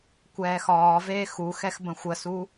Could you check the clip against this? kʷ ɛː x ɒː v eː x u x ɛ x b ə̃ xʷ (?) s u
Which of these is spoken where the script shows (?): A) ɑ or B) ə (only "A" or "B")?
B